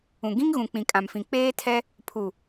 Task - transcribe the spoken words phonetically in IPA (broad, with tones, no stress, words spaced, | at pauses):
ũ˨ ɡĩ˦ŋɣũ˨ k͡pĩ˨kʼã˨mfĩ˨ k͡peː˦tʰɛ˦ | pʰu˨